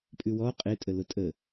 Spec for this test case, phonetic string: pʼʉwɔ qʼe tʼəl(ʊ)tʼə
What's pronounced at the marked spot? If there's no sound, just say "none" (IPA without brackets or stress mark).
ʊ